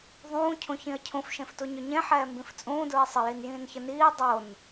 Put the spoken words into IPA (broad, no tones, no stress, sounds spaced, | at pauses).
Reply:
ðˤ ũː cʰ ũ ç ĩ ə̯ cʰ ũ f ʃ ẽ f t u ɲ ɵ ɲ ẽ ħ ɛː m b ĩ f t͡sʼ ũː d ɹ e sˤ ə j i n j ĩː n ç ə n iː dˤ o n